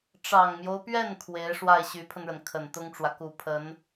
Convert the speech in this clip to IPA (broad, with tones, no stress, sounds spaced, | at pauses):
ʈ͡ʂ ɑ˨˩ ŋ m j o˦ ʊ̯ p ɥ ɛ˥˩ n kʰ w e˧˥ ɪ̯ ʂ w a˥˩ ɪ̯ ɕ y˧˥ pʰ ə˧ n ɻ ə˩ n kʰ ə˨˩ n t̪ ʊ˥ ŋ ʈ͡ʂ w ä˨ k u˨˩ pʰ ə˧˥ n